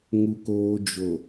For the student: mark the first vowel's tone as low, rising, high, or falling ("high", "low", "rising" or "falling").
low